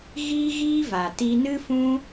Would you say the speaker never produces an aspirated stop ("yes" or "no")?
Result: yes